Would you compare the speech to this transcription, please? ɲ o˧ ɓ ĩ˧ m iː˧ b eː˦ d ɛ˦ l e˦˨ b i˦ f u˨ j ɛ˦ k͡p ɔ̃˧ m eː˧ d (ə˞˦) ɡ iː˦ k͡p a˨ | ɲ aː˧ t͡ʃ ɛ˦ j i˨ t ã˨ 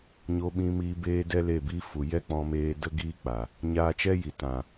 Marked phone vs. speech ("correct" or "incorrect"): incorrect